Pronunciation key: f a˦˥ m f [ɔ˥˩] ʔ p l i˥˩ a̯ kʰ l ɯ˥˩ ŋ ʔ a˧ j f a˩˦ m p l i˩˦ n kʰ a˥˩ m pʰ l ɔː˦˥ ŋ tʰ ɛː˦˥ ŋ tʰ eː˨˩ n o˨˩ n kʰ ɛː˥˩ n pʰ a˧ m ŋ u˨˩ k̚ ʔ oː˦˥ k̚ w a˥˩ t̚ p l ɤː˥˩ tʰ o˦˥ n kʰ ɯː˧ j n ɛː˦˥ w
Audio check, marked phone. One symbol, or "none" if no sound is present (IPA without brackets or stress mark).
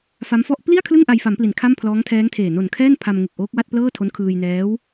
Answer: ɔ˥˩